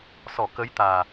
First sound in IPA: s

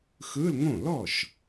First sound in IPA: x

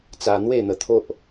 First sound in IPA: t͡s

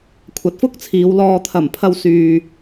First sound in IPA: kʷʰ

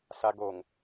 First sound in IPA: s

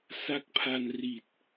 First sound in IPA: s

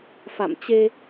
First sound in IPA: f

